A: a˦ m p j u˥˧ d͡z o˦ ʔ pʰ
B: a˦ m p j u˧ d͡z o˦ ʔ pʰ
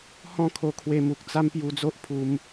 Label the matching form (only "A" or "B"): B